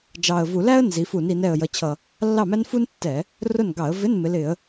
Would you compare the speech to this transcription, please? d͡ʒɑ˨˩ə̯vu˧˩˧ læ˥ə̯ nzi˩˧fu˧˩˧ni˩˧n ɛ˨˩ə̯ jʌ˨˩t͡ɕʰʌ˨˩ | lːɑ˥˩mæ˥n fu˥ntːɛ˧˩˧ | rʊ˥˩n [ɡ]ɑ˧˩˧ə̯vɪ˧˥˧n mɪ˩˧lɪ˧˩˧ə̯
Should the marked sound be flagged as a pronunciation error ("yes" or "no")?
no